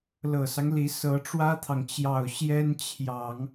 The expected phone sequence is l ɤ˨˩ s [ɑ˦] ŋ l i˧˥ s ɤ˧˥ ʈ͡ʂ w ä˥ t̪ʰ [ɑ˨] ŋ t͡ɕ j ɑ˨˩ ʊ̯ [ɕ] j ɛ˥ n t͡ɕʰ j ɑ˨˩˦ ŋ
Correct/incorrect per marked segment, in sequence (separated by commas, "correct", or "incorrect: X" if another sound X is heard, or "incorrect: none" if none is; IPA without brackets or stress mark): correct, correct, correct